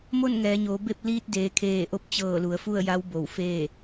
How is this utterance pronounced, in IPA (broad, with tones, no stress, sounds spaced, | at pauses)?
m o˥˨ n ŋ ɛː˩˧ ɲ oː˩˧ b e˥˨ p̚ l iː˧ t̚ d eː˩˧ kʰ eː˧˩ ʔ o˧˥ p̚ t͡ɕ ɤː˧˩ l u˩˧ ə̯ f u˥˨ ə̯ j a˧˥ w b o˧˩ w f eː˥˨